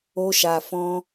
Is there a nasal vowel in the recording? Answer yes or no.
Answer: yes